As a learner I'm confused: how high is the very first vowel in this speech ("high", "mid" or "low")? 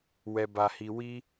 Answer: mid